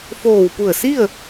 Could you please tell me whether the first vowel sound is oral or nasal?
oral